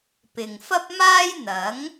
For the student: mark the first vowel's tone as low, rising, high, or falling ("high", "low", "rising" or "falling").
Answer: low